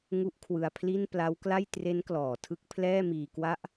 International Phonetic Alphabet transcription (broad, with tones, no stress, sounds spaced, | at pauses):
ŋ u˦˥ ʔ kʰ w ɯ˧ a̯ pʰ l i˥˩ n p l a˦˥ w k l a˥˩ j t r e˦˥ n k l ɔː˩˦ tʰ ɯ˦˥ k̚ pʰ l ɛː˥˩ m iː˧ k w a˥˩ ʔ